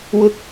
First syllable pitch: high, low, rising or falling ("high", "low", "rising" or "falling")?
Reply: high